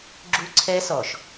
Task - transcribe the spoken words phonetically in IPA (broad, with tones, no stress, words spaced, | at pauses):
ɡ͡ǁu˦ǀʰɛ˦sɔ˨ʃ